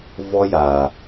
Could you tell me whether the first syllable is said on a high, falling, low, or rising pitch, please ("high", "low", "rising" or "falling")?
high